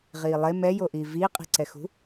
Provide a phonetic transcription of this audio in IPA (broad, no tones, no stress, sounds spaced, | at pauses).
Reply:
ʁ iː lˠ e m ɛ j o ʔ iː v iː qʼ i̤ ǀ ɛ x ṳ